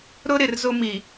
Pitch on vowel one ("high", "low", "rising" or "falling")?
high